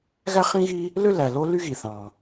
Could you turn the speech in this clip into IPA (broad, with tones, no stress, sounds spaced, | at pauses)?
ɣ æ˥ χ ĩ˥ ɣ i˥ | l ø˥ l æ˩ l o˥ l y˥ ɣ i˩ θ ɑ̃˩